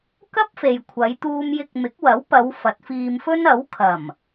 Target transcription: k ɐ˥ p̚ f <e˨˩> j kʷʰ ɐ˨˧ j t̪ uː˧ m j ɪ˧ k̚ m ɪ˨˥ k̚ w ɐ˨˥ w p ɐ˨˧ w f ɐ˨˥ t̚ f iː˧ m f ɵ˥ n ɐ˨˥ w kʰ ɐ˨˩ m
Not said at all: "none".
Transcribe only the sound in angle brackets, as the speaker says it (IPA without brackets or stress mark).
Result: e˨